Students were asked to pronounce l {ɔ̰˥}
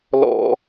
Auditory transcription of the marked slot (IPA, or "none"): ɔ̰˥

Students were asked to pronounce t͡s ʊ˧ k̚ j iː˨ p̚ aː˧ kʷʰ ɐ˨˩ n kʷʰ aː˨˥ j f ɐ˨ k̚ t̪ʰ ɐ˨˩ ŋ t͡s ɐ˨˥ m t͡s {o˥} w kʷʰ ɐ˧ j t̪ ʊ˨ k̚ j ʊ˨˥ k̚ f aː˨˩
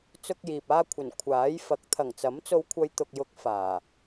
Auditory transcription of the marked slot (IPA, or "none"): o˧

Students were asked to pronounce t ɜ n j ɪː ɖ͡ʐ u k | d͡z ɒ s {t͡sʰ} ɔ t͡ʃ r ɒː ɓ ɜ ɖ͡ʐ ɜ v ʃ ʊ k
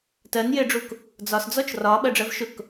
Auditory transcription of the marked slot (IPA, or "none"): d͡z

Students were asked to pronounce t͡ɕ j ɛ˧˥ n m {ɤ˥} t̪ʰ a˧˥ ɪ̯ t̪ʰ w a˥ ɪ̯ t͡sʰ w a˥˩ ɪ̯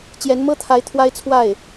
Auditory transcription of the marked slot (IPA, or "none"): ɤ˥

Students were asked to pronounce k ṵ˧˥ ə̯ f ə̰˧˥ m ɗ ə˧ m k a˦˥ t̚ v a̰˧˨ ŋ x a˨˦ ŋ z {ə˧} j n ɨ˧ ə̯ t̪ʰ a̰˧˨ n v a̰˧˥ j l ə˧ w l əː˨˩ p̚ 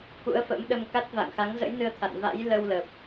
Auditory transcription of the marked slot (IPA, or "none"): ə̰˧˥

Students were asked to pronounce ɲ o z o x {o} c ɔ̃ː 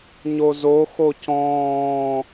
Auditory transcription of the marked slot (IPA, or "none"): o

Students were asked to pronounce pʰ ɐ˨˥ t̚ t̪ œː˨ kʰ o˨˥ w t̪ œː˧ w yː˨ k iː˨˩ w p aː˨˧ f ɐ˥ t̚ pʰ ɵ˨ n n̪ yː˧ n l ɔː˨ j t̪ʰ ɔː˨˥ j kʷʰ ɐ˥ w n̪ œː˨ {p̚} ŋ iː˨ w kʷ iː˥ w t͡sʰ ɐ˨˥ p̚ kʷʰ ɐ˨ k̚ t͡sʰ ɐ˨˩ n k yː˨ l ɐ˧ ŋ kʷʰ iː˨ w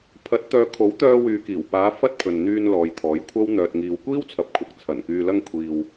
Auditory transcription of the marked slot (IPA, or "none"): t̚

